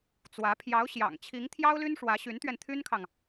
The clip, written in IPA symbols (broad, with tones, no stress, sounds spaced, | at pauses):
t͡s w ä˧˥ pʰ j ɑ˧˥ ʊ̯ ɕ j ɑ̰˨˩ ŋ t͡ɕʰ i˧˥ ŋ t̪ʰ j ɑ˥ ʊ̯ l y˥ n ʂ w ä˧˥ ɕ y˧˥ n t̪ ɥ ɛ˧ n t̪ʰ y˥ n kʰ ɑ˨ ŋ